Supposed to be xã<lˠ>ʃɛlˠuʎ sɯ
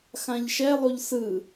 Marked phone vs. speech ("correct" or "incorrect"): incorrect